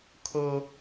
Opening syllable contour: high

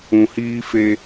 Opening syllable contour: low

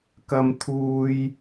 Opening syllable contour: high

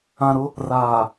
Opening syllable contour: low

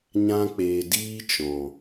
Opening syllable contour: high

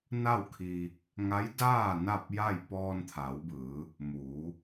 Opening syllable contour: falling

